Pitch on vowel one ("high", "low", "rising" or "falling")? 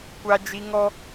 high